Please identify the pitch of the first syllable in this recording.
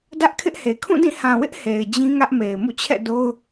high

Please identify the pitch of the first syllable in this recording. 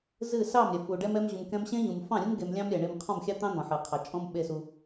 falling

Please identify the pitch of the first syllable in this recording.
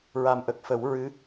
low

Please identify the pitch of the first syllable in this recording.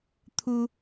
high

